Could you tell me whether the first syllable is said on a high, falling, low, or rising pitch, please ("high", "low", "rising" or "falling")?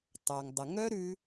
low